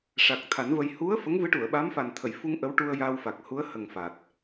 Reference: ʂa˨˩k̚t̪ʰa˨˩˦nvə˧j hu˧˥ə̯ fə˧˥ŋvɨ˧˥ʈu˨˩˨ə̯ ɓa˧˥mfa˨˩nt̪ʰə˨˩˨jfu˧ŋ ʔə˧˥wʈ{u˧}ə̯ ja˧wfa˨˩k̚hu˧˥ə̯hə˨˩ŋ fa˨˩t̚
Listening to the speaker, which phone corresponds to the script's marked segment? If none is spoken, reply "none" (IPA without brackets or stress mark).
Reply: u˧